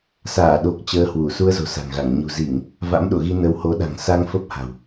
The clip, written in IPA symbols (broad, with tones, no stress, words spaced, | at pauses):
saː˧˩ɗo˨˩k̚ t͡ɕəː˧hwu˧˩ su˧ə̯zo̤˨˩sa̤˨˩ŋɣa˧˩ŋ ɲṳ˨˩zi˧˩˨ŋ | va̰˧˥mɗo̰˧˨ ɣi˧nə˨˦who˨˦ɗa̤˨˩ŋ sa˧ŋ fə˦˥p̚ha̤˨˩w